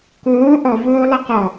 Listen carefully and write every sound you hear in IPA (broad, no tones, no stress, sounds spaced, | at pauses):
k oː ʔ ɔ v oː lˠ ɛ q ɔ